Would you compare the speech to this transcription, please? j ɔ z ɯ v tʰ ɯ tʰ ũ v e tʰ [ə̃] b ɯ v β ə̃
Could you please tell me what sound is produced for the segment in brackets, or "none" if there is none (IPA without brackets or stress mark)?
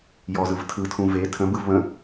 ə̃